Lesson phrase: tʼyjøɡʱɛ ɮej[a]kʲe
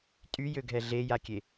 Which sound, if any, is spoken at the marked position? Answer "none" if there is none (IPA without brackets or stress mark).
a